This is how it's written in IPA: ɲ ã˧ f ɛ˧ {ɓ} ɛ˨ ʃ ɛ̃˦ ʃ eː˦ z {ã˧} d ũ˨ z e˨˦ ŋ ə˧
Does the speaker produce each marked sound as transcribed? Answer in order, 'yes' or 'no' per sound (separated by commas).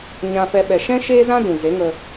yes, no